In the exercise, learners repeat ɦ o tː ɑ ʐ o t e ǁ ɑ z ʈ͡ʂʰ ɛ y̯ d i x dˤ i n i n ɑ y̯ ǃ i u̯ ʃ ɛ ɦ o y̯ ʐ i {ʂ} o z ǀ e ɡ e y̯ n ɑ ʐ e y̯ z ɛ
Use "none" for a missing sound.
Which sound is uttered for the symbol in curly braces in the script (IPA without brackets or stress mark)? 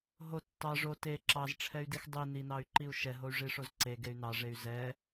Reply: ʂ